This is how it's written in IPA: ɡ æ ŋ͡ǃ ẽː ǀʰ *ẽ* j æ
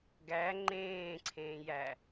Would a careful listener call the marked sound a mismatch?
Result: yes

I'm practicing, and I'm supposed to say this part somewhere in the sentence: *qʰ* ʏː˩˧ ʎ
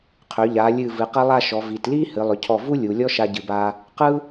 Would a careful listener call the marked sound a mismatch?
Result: no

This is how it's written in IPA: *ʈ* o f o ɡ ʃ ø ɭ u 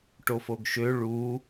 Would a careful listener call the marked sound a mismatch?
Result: no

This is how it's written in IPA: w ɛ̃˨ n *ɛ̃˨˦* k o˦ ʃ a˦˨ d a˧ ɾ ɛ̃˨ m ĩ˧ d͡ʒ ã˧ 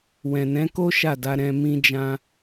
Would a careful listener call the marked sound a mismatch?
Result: no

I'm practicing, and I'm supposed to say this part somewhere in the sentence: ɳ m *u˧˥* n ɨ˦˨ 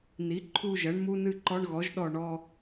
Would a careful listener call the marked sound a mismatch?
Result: no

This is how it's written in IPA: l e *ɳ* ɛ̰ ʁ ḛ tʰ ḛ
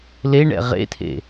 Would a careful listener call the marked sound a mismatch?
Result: no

